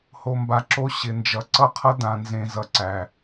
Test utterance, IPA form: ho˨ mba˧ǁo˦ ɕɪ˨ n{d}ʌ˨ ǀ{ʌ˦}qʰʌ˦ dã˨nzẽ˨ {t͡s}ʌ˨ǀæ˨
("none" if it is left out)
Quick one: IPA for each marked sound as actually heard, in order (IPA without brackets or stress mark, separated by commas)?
d͡ʒ, ʌ˦, z